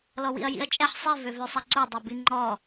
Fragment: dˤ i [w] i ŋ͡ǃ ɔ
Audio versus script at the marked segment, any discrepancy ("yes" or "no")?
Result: yes